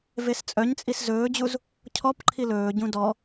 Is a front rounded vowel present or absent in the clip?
present